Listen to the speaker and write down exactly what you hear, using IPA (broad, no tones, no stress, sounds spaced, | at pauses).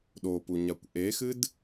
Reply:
ɗ o p u ɲ a kʷ ʔ e x ɨ d